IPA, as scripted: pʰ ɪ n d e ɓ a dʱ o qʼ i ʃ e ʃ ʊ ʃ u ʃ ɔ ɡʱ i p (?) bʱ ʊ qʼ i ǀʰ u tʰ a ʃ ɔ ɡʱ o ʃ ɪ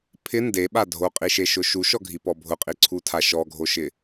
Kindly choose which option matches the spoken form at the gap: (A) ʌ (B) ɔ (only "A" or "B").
B